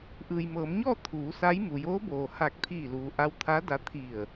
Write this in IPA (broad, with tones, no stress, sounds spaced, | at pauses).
ʔ ɯː˩ j m ɤː˩˧ m ɲ ɔː˥˨ t̪ʰ uː˩˧ s a˧˥ j m u˩ j oː˧˥ b oː˩ h a˧˩ k̚ t̪ʰ iː˧˩ l uː˩ ʔ a˧˥ w t̪ʰ a˧˥ d a˧˥ t̪ʰ i˧˩ ə̯